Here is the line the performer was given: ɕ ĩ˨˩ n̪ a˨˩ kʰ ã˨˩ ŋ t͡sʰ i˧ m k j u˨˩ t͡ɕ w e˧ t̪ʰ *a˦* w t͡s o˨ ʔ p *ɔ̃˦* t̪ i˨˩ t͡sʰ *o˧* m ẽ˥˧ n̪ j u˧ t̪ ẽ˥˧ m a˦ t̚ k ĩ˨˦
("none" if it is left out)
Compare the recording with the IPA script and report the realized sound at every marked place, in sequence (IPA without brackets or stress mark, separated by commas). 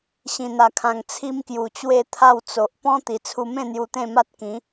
a˥˧, ɔ̃˦, u˧